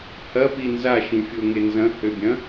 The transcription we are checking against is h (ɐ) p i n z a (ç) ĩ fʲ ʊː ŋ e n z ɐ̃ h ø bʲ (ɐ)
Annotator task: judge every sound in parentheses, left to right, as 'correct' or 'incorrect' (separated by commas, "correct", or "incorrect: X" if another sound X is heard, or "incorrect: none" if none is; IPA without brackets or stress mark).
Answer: correct, incorrect: ʃ, incorrect: ɐ̃